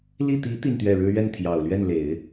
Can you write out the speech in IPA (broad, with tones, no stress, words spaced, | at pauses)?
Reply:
li˥˩ t̪i˧˥ t̪i˥˧nt̪ɥɛ˥˩ɻɻ̩˥ ɥɛ˥˩nt̪ʰjɑ˨˩ʊ̯lɥɛ˥˩nle˨˩˦ɪ̯